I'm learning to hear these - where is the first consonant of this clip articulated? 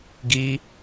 velum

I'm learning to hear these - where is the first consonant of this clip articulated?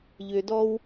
palate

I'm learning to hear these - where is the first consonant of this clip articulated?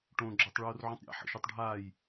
retroflex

